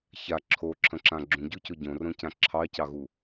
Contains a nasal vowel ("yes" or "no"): yes